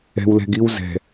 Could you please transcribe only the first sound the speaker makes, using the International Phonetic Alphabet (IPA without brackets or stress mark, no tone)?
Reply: ɛ̤